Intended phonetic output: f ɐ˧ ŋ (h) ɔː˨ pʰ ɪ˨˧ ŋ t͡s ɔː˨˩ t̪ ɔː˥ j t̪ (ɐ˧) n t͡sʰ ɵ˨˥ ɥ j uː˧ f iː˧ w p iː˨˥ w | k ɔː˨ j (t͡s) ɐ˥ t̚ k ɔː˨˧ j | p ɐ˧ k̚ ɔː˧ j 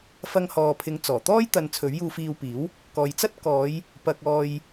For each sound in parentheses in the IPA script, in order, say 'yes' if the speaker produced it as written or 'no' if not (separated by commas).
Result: yes, yes, yes